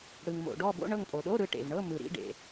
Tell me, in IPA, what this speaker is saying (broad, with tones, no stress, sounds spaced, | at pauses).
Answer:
ɽ ɯ˩ ŋ m o̰˩ ɖ ɔ˦˨ b o̰˧˥˧ ɳ ɤ˦˨ ŋ pʼ o˩ ɗ o˧˥˧ ɾ ɯ˦˨ ʈ ḛ˩ v ɳ ɤ˧˥˧ m ɯ˩ ɾ ḭ˧˥˧ ɖ ḛ˩